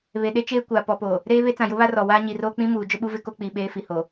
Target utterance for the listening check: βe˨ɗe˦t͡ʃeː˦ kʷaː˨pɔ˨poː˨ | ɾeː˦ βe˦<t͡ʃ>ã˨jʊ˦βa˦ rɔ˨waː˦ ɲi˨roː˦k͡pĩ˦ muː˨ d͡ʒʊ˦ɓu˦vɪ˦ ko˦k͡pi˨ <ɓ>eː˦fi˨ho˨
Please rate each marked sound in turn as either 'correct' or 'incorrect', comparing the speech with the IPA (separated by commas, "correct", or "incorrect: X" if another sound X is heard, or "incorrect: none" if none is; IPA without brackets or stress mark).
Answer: incorrect: t͡s, correct